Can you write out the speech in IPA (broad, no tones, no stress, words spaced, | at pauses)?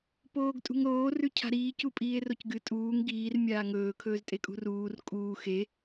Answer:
poːɡtʼṳŋɾoː rʉcʰa̤ɾiː cupʼiːe̯rocɡɨ tʼuːŋ ɡiːr mʲaːŋɵː kʰɵːztʼekʼṳruːr kʼuː xe